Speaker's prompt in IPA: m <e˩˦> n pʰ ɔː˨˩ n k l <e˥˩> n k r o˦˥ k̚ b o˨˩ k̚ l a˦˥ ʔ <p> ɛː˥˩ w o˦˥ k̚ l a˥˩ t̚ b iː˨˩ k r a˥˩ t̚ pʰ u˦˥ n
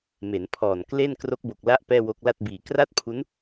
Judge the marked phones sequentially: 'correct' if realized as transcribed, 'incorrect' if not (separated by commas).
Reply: correct, correct, correct